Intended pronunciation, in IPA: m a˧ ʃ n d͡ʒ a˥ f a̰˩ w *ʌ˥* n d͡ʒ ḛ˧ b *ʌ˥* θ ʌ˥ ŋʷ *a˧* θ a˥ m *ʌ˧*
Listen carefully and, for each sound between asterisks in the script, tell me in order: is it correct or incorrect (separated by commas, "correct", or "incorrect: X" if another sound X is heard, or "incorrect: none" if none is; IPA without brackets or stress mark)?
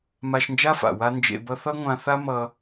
incorrect: a˥, correct, incorrect: ã˧, correct